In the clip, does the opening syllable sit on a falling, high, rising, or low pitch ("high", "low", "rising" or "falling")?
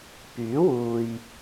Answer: rising